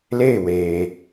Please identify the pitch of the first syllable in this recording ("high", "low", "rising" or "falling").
falling